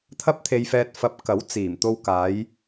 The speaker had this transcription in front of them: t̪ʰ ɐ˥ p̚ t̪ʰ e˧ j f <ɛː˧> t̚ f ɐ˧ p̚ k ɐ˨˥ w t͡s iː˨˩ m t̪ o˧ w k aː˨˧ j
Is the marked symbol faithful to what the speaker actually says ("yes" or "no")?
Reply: yes